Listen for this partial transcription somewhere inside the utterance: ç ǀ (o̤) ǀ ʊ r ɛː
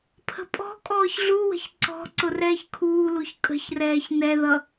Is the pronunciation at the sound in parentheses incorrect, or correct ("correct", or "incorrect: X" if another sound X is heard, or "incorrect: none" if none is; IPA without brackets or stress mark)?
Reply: incorrect: ɔ̤